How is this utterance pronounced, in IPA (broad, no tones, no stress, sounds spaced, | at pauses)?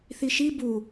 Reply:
θ i ʃ i b u